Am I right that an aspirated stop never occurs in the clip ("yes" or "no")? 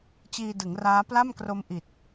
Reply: yes